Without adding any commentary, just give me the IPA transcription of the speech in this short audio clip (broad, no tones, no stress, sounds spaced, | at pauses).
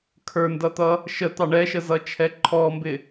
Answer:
kʰ ə˞ n d ʌ t̪ ʌ | ʃ ə t̪ ɑ ɳ ɛ ʃ ə z ʌ t͡ʃʰ ɛ ǃʰ ɔ m b ɪ